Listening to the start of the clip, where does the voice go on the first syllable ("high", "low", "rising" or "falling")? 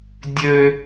high